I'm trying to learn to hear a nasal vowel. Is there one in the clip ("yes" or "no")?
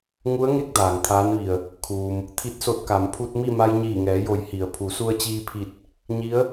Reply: no